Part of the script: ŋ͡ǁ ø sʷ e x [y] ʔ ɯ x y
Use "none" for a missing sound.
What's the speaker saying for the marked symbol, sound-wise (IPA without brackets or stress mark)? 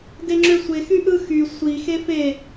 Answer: y